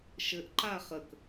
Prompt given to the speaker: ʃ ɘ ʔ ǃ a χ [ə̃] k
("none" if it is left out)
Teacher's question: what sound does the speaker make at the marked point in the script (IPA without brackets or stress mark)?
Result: ə